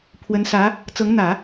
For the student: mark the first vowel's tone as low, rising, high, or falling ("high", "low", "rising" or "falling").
rising